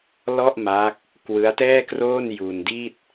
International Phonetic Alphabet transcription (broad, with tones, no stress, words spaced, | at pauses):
lɔ˥˩ʔma˦˥k̚ | kwɯ˦˥a̯tɛː˥˩kroː˥˩n ju˧ndi˥˩t̚